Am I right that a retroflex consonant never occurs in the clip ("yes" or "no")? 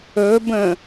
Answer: yes